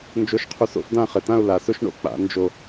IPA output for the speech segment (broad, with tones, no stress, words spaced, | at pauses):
nd͡ʒo˧ʃqʰu˧˩s o̰˥fdã˥˧χɪ˩˧tã˥˧ʊ̯ la˩˧sʊ˥ʃɳo̰˥˧ k͡pa̰˩˧ nd͡ʒo˧˩